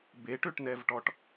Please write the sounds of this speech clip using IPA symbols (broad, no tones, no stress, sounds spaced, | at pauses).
b e ʈ ø ʈ n ɛ v ʈ ɔ ʈ